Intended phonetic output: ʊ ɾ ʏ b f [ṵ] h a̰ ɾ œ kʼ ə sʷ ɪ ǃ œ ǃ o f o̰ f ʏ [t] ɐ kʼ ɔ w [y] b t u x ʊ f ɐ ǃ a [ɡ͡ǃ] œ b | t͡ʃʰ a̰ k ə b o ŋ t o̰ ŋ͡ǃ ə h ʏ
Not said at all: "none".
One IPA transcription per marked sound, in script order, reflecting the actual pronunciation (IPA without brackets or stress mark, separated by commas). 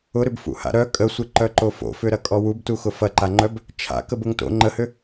ṵ, ɾ, u, ŋ͡ǃ